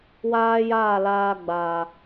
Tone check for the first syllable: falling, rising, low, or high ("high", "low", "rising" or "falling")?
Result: high